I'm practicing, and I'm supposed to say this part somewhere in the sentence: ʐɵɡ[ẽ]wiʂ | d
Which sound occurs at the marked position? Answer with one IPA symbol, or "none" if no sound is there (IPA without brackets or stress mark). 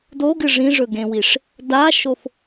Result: ẽ